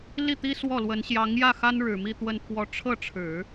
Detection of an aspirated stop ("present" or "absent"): present